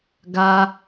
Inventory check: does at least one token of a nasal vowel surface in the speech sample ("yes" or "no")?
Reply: no